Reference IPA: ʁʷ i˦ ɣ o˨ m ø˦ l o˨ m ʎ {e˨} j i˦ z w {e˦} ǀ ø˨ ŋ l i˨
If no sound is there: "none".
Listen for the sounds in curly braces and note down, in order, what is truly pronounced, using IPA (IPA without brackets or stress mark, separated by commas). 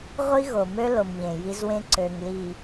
ẽ˨, ẽ˦